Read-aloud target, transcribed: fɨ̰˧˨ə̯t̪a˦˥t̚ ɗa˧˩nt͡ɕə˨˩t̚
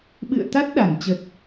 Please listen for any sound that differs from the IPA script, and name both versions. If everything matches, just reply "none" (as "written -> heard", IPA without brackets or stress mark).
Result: f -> ɓ